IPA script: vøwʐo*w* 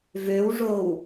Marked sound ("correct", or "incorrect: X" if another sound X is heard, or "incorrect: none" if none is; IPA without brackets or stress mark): correct